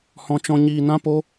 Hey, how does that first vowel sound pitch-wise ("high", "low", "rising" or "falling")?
high